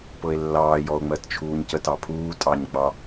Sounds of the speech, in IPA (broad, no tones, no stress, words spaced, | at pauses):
pɤe̯lːɑː jɔo̯ŋ͡mɜtt͡ʃʰuːɲcət ɑpʰuː tʼɑɲ ɡ͡bɑ